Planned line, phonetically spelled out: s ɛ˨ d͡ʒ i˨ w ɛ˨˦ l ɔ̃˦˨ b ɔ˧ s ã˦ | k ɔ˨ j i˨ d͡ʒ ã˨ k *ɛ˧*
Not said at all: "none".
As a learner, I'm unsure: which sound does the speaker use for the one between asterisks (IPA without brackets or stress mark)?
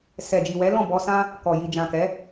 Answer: ɛ˨˦